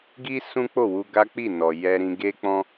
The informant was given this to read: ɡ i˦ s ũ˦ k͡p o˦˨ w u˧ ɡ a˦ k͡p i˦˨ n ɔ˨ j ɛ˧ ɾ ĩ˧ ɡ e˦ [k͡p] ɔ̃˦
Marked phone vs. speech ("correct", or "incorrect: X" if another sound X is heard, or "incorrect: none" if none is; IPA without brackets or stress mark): correct